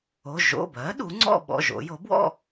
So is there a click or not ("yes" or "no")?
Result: yes